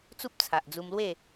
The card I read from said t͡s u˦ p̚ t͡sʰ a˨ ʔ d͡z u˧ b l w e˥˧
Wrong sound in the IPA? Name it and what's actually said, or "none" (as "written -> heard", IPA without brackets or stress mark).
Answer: b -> m